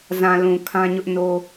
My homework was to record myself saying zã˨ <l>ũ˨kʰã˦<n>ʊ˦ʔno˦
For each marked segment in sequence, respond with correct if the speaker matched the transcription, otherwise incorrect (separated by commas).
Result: correct, incorrect